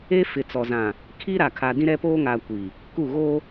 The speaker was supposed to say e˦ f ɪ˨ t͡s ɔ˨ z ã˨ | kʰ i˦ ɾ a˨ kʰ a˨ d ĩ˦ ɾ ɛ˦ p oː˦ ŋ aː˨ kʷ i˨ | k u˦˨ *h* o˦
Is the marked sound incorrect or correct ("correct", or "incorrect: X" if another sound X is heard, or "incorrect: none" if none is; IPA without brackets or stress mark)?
incorrect: ɣ